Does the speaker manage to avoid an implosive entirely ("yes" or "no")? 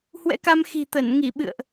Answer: no